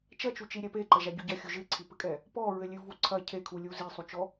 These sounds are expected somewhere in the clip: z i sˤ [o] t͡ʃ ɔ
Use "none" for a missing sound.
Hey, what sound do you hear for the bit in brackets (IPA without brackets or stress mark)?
u